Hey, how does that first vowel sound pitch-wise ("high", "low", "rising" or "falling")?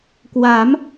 rising